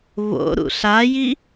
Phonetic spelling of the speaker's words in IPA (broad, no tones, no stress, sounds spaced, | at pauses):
v o̰ ɾ ṵ ɬ a j i